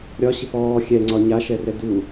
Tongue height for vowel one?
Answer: low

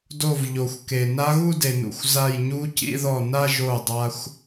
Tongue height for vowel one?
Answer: mid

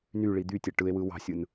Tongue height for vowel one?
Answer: high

